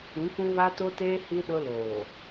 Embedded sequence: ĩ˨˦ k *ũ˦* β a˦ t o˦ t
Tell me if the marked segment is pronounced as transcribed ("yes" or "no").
yes